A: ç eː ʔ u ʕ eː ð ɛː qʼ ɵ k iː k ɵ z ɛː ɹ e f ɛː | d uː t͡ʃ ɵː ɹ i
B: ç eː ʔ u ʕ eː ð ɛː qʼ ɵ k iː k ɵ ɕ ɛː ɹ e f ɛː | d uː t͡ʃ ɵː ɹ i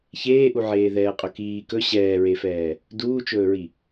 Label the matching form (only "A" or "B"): B